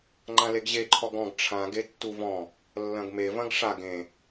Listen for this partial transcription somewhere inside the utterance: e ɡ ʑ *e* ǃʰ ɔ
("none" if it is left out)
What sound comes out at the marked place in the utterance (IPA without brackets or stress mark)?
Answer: e